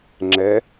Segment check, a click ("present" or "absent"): present